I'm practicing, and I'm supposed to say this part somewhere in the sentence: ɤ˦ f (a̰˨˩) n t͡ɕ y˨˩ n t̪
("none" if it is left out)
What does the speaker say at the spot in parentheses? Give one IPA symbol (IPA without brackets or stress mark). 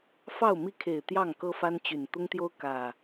a˦